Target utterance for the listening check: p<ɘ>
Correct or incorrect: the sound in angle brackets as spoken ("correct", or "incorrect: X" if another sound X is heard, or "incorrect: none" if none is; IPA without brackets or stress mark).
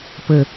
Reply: correct